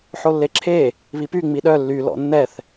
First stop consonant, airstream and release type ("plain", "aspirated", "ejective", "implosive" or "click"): click